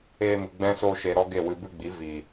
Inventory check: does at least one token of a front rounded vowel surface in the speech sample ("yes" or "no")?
no